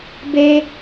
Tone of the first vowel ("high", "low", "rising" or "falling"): high